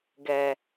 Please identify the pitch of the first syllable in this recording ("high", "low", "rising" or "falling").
low